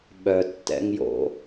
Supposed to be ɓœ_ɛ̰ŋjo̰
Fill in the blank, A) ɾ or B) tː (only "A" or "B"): B